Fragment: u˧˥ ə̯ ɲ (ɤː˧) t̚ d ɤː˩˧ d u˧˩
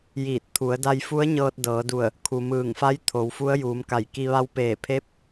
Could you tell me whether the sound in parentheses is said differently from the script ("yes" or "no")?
no